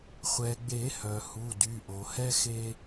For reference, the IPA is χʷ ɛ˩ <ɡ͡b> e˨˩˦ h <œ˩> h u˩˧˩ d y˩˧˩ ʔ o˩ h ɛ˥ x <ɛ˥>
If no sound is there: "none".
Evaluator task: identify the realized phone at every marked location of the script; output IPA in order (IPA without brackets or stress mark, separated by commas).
ɡ͡b, œ˩, e˥